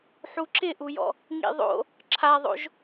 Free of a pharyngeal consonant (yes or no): no